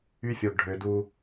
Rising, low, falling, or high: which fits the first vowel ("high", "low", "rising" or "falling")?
high